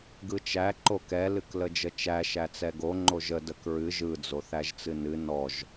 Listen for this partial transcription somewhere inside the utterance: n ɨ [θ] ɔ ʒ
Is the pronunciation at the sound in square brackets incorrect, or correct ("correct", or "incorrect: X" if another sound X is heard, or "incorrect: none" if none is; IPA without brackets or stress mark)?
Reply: incorrect: n